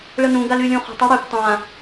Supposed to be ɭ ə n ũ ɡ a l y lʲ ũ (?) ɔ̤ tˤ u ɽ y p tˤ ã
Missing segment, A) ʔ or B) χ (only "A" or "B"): B